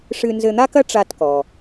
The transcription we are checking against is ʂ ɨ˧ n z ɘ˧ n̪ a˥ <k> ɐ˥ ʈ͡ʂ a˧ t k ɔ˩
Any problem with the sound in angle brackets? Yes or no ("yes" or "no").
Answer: no